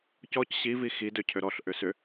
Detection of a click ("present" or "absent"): absent